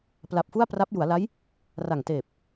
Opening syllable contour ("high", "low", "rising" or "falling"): low